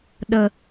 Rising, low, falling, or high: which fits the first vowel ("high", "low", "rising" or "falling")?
high